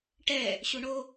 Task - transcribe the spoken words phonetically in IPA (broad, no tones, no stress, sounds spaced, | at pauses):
ʈ ɛ | ɕ u ɳ o